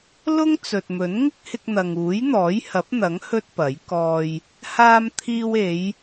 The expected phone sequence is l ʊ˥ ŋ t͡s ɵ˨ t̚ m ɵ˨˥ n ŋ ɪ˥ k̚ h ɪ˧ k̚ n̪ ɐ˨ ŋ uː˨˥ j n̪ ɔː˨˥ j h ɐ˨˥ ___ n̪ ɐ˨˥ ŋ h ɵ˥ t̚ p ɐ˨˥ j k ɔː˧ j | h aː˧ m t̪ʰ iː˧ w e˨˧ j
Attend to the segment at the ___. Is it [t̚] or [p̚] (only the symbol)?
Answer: p̚